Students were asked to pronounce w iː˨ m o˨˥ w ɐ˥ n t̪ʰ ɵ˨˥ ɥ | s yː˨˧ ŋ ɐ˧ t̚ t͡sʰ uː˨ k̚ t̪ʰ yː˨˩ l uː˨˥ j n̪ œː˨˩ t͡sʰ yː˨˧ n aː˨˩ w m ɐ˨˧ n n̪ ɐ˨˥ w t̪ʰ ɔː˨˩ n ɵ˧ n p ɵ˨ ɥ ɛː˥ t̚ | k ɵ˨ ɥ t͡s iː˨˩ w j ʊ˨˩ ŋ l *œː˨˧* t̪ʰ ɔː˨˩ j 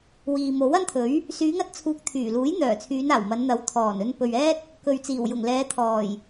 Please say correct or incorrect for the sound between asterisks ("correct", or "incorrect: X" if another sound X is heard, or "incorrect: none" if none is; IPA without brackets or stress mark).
incorrect: ɛː˨˧